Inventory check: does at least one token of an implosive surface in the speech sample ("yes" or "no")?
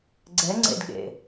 yes